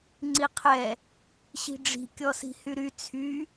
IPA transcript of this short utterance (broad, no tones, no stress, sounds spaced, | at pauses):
ŋ͡ǀ i qʰ ɛ | ɕ i̤ ɖ͡ʐ i̤ kʲ ɔ s i̤ h y ɾ y t͡sʰ y